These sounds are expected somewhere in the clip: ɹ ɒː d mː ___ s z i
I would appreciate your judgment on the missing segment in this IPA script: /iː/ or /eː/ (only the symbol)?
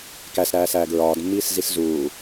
iː